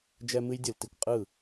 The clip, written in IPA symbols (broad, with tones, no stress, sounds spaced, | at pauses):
d͡ʒ ɛ˥ m ɨ˥ j dʲ ɯ˧˩˧ l t i˨˩ kʷ qʼ ɯ˥˩